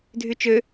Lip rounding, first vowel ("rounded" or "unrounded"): rounded